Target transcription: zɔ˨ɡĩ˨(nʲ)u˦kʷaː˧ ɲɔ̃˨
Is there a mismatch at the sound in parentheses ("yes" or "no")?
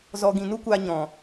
yes